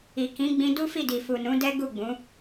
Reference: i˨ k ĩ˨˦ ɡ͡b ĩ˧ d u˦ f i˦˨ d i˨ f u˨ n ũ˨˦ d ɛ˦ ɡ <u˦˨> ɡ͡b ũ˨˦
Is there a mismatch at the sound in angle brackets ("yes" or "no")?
no